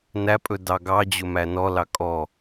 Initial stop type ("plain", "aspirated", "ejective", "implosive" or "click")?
ejective